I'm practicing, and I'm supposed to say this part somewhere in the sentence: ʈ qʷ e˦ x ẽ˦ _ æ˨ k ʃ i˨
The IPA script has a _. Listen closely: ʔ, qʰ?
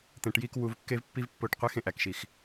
ʔ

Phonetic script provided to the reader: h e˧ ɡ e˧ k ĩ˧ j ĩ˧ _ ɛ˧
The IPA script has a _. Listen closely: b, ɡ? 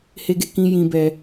b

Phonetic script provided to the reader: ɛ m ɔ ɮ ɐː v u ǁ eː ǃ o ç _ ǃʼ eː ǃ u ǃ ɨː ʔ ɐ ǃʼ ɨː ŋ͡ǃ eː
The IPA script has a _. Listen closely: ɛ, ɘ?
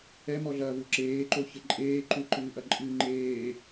ɘ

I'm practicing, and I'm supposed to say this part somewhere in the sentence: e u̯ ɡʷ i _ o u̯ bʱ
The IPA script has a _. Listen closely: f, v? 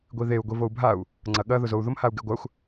v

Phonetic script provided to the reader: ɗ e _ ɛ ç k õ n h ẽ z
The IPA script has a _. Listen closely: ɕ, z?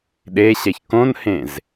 ɕ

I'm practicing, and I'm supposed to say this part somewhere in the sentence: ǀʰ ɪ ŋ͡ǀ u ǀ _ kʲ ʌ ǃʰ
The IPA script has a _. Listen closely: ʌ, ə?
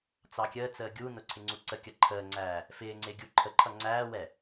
ə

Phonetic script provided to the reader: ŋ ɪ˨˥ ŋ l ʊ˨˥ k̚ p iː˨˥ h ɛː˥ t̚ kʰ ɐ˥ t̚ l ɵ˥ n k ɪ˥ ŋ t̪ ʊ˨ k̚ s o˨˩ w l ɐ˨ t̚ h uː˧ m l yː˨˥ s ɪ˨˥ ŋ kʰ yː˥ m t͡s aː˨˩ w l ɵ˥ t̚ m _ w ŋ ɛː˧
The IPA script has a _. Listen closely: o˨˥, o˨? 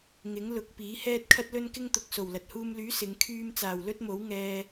o˨˥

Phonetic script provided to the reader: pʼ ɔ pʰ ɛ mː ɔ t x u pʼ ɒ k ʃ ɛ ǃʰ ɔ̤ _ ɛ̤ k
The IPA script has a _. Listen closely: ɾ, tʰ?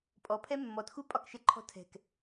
tʰ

